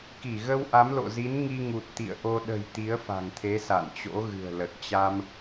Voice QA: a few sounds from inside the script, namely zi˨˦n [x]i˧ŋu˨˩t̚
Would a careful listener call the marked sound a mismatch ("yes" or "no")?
yes